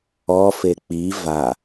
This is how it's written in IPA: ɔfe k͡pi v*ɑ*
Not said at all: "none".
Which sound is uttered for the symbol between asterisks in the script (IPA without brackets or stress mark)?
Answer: a